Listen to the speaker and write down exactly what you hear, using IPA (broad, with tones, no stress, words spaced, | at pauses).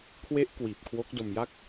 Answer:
kʰwe˦˥ʔ kwiː˨˩p̚kʰwo˦˥k̚ do˧mja˥˩k̚